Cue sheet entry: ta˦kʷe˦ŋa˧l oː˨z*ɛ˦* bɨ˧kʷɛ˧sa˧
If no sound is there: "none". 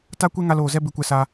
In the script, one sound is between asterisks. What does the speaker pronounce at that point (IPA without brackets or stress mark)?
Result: ɛ˦